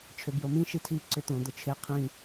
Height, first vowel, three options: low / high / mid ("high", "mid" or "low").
high